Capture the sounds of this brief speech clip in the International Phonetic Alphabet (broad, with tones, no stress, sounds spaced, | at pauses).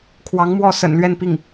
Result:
kʰ w ɑ˧˥ ŋ m w ɔ˥˩ s ə̰˨˩ n l ɥ ɛ˥˧ n p i˥˩ ŋ